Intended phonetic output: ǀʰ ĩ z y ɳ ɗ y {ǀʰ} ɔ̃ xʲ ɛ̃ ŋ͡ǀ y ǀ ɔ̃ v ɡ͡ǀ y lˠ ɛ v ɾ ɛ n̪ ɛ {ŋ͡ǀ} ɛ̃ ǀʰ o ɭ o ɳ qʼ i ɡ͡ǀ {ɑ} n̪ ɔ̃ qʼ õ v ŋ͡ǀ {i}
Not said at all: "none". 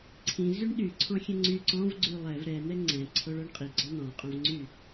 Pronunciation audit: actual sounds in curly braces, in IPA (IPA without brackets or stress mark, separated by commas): ǀʰ, ŋ͡ǀ, ɔ, y